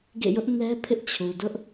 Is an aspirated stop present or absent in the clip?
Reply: present